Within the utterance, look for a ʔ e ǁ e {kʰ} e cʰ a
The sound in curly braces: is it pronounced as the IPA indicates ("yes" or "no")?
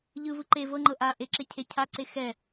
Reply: no